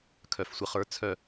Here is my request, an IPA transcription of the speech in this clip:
kʰœ˨˩˦fsʷə˨˥χə˞˨˥ t͡sʰœ˦˨

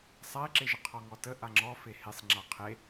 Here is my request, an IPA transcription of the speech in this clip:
sˤaɪ̯ǁeʒə qʰɔŋɔtə ʔaŋ͡ǁɔfe hesˤŋ͡ǁa qʰe

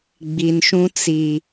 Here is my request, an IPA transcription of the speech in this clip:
ɡ͡bi˨nʃũ˦ t͡si˨

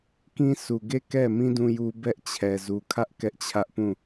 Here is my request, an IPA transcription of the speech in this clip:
kĩ˦sʰu˨ɡe˦˨ kɛ˦˨mĩ˦ dũ˦ju˦bɛ˦ʔt͡ɕʰɛ˨ zu˨kʰä˦ʔ kɛ˦ʔt͡ɕʰä˦ʔpũ˦˨

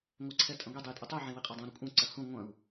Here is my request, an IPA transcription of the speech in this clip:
ŋʷɛǀʰɛtʼɐ̃ɡʷi dˤɘjtʼutˤu ʕẽwiqʼɐdˤũ ɾʏkʷʼɐ̃ ǀɐhũ ŋʷɐ̃u̯

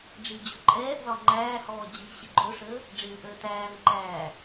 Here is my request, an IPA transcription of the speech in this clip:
ɖ͡ʐid͡ʑʊǃʼɛːʔzɒ ŋ͡ǃæːhɔː d͡ʑi ɕɪɡ͡ǃʊʂəː | ɖ͡ʐɪːʔəːtæːŋǃæː

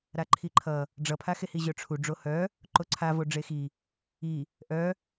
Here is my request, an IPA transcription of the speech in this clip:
ɾaǃʰiǃʰʌ | ɖ͡ʐʌpʰaxehi ʑœʈ͡ʂʰuɖ͡ʐo hœ | ǃoǀʰavo ɖ͡ʐexi | i | ʔœ

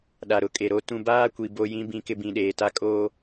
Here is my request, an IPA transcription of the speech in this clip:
ɗa˨ɾʊ˨˦kʼe˨ɾo˦ tũ˦ baː˦kʷi˨ bo˦jĩ˦ bĩ˦kɪ˦ bĩ˨ɗeː˨ta˦ kʼoː˦

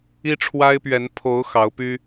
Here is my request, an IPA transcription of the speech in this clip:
i˦ʈ͡ʂʰwa˦ɪ̯pɥɛ˨˦n pʰo˨˦ʊ̯ xɑ˨˦ʊ̯py˦

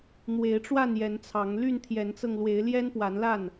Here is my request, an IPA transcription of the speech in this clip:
n̪we˨˦ɪ̯ʈ͡ʂwa˥˨njɛ˨˦nt͡sʰɑ˨˦ŋ ly˥˨nt̪ʰjɛ˨˦nt͡sɤ˧ŋ lwe˨˦ɪ̯ljɛ˦n pwa˨˦nla˥˨n

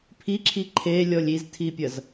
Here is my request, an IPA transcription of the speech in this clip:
pʰiǁʰi ǃʰelʲɔlʲ iztʰipʲɐz

